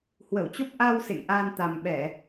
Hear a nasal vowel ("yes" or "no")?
no